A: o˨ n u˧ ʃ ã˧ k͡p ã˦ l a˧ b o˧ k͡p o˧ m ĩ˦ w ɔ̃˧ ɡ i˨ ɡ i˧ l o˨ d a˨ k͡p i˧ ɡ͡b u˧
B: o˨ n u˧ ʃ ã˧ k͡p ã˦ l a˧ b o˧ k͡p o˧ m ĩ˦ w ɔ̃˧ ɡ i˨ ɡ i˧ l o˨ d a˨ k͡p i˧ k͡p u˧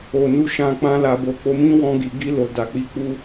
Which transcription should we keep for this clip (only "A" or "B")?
B